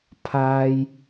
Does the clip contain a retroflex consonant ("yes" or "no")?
no